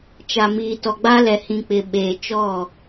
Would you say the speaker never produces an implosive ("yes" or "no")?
no